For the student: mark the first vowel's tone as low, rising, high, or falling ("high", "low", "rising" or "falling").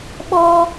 high